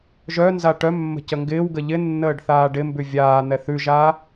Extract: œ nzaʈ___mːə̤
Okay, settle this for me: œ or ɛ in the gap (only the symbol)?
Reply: œ